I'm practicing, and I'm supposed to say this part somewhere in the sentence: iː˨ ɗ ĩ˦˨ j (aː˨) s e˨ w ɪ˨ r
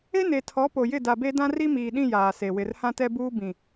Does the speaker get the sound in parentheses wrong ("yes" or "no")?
no